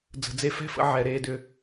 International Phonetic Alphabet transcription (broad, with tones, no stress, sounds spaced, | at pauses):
d͡z ə̤˨ d͡z e˧ f ɛ̤˦ f ə̰˧ ʕ ɛ˨ ɾ eː˧ d ʏ˧